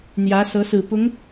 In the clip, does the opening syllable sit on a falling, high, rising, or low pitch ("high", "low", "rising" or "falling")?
rising